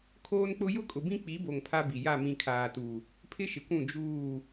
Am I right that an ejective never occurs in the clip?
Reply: no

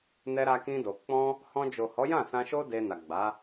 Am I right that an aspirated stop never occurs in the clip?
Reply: yes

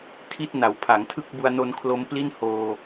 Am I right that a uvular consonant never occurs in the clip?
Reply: yes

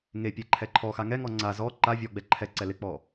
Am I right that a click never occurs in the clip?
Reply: no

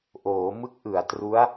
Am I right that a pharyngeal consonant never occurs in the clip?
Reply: yes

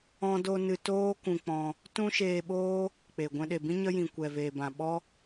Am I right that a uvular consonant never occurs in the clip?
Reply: yes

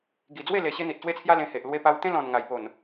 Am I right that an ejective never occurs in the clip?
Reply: yes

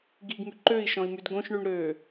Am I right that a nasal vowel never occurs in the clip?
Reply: no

